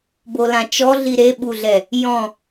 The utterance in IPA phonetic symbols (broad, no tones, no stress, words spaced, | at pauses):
bolãt͡ʃɔɮi ɾeɓuɮɛ | jɔ̃